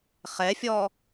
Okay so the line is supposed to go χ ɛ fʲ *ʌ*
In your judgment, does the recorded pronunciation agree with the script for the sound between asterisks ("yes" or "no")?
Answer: no